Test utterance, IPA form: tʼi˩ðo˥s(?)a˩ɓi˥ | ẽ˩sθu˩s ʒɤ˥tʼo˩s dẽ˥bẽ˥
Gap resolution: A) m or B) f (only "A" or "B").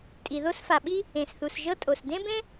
B